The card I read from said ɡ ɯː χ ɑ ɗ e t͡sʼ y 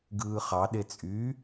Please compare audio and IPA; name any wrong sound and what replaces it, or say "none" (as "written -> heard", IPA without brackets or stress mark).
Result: none